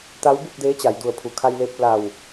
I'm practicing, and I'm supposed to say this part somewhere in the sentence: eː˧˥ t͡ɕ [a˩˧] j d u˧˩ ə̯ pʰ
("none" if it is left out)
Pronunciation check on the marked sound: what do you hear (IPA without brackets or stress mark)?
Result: a˩˧